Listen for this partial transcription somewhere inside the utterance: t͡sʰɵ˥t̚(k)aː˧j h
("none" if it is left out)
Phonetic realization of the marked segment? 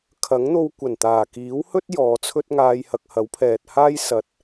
ŋ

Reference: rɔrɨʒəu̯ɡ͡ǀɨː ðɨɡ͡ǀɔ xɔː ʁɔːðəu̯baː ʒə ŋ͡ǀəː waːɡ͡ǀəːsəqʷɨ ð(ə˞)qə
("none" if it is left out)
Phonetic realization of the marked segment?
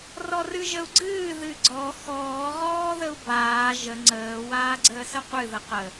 ə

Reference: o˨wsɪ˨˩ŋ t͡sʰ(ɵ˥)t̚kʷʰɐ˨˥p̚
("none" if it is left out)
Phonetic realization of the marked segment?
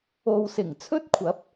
ɵ˥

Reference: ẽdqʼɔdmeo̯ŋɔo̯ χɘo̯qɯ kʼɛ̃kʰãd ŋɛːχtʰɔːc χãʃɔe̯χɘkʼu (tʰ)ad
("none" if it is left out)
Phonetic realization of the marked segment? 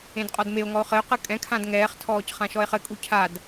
cʰ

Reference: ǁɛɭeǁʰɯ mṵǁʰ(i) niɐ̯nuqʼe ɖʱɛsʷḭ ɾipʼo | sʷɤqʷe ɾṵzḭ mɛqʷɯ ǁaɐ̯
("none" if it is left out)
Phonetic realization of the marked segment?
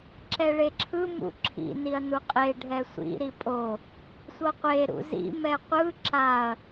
ḭ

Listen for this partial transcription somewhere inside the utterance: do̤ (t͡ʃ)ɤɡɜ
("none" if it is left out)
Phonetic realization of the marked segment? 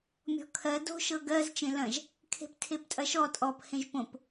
ʃ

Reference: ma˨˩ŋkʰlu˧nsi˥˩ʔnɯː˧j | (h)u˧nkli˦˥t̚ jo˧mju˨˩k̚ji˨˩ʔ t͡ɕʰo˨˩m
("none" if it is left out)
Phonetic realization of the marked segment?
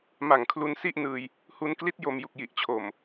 h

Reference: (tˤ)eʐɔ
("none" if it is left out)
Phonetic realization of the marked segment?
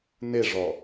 n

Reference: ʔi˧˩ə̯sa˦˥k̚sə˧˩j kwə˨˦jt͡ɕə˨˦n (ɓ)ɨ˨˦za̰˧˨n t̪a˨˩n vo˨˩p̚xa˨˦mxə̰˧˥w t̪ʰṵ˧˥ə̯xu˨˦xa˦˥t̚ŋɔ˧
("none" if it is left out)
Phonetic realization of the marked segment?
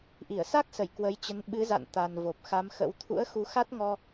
ɓ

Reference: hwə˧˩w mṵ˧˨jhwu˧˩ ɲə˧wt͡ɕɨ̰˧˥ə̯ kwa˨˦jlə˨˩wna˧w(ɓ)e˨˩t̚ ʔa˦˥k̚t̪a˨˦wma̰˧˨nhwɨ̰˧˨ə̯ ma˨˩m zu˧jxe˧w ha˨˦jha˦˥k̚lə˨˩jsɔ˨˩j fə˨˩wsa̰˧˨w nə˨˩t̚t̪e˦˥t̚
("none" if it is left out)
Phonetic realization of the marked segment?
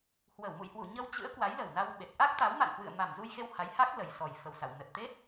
ɓ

